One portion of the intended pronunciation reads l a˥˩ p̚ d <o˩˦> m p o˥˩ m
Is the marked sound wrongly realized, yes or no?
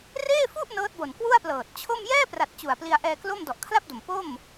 yes